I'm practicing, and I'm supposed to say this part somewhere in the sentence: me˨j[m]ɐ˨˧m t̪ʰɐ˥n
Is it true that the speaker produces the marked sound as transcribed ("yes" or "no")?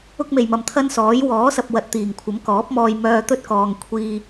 yes